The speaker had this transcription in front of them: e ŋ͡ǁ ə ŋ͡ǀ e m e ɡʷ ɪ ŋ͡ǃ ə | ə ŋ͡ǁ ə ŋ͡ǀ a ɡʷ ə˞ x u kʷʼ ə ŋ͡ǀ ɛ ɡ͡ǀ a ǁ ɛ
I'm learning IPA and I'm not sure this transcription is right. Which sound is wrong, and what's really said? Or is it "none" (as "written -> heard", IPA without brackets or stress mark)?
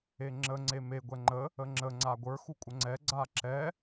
ɪ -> ɛ